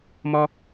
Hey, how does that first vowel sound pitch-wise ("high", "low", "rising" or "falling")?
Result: high